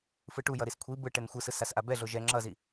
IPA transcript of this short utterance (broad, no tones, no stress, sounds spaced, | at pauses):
f ɯ ʈ u j ʌ ɾ i s kʷʰ i b ɯ ʈ ɛ n xʷ ɯ s ɯ s a s ʔ a b ɛ ɮ o ʒ ɛ ŋ͡ǁ ʌ z i